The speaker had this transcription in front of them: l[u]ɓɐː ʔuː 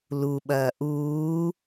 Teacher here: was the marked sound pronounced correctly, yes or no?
yes